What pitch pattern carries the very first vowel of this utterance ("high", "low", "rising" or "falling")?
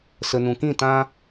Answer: low